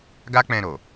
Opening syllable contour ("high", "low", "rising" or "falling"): high